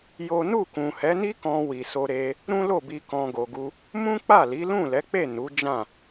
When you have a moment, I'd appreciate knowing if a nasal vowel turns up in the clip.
yes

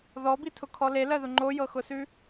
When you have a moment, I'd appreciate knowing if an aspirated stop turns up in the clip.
yes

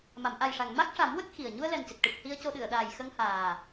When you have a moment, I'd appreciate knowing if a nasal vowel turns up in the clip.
no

